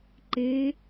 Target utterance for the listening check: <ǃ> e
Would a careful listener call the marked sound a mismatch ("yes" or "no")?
no